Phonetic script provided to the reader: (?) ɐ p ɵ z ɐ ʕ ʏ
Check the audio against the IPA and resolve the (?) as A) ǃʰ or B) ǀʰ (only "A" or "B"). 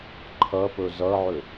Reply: A